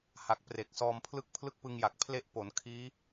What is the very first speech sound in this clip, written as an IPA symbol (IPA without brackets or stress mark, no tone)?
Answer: h